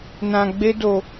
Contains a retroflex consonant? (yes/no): no